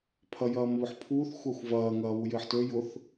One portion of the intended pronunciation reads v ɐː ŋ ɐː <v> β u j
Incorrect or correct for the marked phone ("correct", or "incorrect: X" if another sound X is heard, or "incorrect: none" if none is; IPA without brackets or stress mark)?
incorrect: none